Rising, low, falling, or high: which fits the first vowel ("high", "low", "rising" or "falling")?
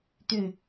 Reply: low